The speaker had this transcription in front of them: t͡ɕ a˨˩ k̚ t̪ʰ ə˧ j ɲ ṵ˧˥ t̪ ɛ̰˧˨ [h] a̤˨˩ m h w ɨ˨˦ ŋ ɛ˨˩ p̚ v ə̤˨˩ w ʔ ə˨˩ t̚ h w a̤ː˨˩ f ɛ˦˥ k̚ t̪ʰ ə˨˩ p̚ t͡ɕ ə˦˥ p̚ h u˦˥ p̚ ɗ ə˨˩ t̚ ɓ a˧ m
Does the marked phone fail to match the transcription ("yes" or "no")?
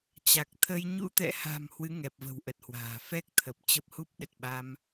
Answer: no